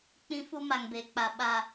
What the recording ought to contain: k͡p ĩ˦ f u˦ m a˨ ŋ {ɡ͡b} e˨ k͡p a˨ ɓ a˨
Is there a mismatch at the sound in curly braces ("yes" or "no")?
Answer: yes